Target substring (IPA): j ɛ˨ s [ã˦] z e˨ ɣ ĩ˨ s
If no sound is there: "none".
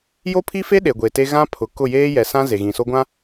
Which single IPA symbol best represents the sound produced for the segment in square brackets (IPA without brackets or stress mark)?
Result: ã˦